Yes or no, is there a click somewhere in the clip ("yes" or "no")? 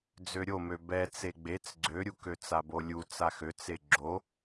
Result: yes